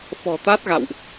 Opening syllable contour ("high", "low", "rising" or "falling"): low